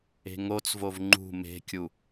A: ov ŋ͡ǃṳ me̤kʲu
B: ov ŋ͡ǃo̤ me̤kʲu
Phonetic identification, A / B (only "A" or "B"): A